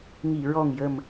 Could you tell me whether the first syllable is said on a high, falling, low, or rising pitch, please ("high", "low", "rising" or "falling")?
low